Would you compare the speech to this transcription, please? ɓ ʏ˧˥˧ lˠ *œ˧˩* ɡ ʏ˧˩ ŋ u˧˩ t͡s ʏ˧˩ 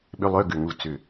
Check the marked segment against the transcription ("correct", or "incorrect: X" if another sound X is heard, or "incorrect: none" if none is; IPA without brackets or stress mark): incorrect: œ˧˥˧